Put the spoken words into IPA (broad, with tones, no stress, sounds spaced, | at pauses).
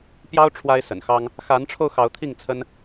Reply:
p j ɑ˦ ʊ̯ ʈ͡ʂʰ w a˦ ɪ̯ s ə̰˨˩ n x ɑ˦ ŋ | x a˨˦ n ʈ͡ʂʰ o˧ ʊ̯ x ɑ˨˦ ʊ̯ t̪ʰ i˥˨ ŋ t͡sʰ ə˦ n